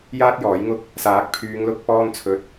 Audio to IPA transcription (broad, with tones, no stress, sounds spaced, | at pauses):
j aː˥ t̚ j ɔː˨˥ j ŋ ʊ˥ k̚ | s aː˨˥ k̚ pʰ yː˨˧ ŋ l ʊ˧ k̚ p ɔː˥ n t͡sʰ ɵ˧ t̚